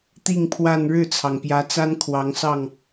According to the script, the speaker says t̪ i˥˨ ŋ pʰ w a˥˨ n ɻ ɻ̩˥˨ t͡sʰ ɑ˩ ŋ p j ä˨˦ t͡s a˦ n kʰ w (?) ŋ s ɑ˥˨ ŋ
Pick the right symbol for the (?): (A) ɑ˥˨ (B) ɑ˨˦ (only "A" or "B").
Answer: B